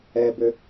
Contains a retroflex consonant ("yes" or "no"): no